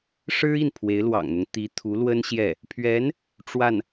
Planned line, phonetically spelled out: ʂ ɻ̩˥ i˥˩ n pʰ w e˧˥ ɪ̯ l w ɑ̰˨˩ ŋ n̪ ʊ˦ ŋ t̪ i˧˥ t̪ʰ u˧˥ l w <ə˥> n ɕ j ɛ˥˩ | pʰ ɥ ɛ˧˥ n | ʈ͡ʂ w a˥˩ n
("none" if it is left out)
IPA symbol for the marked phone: ə˥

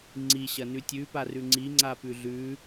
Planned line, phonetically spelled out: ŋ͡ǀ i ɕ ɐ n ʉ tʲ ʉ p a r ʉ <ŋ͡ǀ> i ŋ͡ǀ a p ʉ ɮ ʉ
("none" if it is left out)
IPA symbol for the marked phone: ŋ͡ǀ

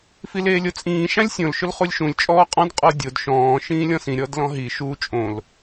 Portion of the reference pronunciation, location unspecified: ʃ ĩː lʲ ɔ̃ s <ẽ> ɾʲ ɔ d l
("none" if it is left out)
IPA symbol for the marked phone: ĩ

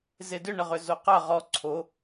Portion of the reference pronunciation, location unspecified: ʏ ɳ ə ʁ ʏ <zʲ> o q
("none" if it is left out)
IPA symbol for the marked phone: z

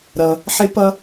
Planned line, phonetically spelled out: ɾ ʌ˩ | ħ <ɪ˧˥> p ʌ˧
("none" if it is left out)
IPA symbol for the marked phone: ɪ˧˥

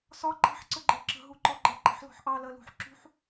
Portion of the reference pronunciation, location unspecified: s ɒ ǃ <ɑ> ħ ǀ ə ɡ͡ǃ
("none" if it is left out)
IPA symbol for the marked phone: ɑ̤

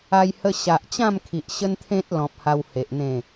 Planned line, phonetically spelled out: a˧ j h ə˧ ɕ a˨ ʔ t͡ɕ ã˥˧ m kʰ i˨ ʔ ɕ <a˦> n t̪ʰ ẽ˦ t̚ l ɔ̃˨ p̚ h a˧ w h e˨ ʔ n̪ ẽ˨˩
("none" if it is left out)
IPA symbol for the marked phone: ə˦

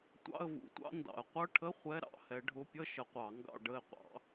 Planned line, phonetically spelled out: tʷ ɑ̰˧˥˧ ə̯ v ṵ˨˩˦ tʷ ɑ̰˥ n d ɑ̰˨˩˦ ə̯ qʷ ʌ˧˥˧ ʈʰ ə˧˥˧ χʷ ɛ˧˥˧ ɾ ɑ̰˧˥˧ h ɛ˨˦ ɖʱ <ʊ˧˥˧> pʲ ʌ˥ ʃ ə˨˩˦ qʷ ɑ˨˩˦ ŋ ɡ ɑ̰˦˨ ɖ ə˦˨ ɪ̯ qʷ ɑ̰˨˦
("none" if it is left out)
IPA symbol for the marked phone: ʊ˧˥˧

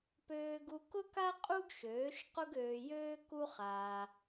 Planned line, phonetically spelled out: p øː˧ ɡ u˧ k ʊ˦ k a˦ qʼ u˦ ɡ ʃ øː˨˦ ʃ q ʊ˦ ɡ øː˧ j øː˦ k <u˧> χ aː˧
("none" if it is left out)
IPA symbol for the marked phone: u˦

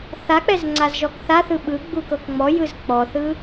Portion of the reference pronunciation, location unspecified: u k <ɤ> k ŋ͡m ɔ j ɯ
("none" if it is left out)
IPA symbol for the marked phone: ɤ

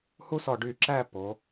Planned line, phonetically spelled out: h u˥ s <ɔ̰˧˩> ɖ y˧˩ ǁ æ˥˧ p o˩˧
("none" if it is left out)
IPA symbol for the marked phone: ɔ˧˩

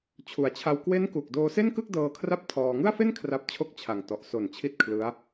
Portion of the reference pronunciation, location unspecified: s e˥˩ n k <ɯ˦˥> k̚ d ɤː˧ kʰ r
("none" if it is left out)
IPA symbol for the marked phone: ɯ˥˩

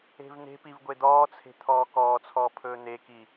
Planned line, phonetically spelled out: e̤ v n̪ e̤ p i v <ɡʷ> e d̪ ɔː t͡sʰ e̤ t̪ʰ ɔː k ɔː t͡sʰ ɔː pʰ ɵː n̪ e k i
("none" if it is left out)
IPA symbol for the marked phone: ɡʷ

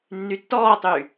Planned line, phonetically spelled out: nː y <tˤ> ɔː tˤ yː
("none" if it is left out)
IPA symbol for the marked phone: tː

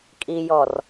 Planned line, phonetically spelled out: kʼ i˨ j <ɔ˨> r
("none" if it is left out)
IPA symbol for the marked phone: ɔ˨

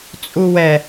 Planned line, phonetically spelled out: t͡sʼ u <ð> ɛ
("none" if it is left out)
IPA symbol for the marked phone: w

